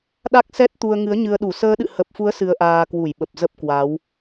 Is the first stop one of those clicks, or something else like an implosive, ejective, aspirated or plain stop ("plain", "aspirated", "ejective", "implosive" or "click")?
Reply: implosive